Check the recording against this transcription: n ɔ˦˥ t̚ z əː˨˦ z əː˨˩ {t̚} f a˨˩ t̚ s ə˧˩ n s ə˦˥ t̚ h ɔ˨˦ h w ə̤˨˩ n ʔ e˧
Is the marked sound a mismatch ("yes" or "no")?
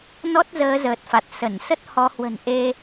no